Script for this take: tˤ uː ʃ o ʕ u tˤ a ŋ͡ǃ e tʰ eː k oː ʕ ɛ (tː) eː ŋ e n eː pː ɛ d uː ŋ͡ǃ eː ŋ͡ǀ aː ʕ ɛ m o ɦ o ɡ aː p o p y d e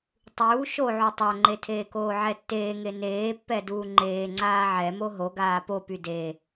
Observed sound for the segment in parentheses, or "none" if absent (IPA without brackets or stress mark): tː